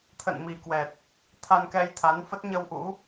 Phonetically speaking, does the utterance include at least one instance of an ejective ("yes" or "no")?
no